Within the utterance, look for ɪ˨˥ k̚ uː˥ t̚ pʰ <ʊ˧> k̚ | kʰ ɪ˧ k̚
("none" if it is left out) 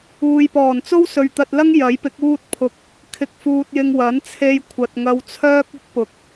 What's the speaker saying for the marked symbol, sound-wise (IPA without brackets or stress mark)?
ʊ˧